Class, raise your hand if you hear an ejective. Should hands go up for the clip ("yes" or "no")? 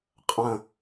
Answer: yes